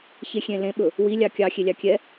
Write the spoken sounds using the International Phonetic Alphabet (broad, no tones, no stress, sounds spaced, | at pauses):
ç e xʲ ẽ l ẽ ɓ ɵ | w i lʲ ɑ kʲ ɑ xʲ e lʲ ɑ kʲ ɛ